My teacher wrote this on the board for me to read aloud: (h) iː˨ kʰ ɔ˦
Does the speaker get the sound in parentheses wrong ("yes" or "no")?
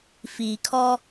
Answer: yes